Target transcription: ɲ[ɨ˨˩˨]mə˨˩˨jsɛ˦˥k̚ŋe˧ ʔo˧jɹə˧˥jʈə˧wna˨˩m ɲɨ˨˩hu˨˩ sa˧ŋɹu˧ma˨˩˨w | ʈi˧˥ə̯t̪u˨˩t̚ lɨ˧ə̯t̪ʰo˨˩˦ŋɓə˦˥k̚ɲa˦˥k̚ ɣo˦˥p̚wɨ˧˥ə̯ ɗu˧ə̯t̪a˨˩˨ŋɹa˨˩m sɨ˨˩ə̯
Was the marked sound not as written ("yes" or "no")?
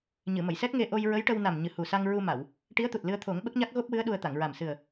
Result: no